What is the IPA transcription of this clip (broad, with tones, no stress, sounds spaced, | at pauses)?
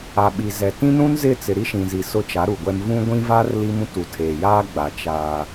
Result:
a˨ ɓ i˨ z ɛ˨ t ĩ˦ n ũ˦ n z ɪ˦˨ t͡s ɪ˨ ɾ i˦ ʃ ĩ˨ z i˨ s ʊ˦ t͡ʃ a˨˦ ɾ u˨ ɡʷ ɛ˦ m v ũ˦ ɡʷ ĩ˦ v a˦ r l i˦ m ũ˦ t u˨ tʰ eː˨ j aː˦ ɡ͡b a˨ t͡ʃ aː˦